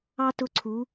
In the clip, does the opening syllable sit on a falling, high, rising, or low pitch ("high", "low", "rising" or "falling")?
high